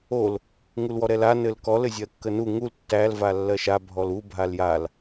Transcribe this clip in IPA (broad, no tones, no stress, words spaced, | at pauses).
ol | ŋulwɔɾɛla nɘlkɔ lɘzʲɜkːənu ŋul tːæl valːɜʃa bʱɔlu bʱaljal